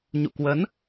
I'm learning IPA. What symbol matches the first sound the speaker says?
ɲ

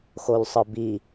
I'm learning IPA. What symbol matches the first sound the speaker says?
x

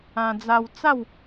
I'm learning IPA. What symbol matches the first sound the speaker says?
ã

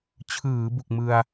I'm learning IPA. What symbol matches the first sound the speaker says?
t͡ɕʰ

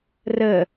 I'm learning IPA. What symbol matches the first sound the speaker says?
r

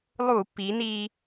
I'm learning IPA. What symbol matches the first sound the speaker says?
lˠ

